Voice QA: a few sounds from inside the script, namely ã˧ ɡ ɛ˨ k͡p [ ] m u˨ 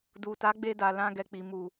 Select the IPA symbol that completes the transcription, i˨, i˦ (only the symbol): i˨